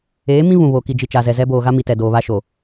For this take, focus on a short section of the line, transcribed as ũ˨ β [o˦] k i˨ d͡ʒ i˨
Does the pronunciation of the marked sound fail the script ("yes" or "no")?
yes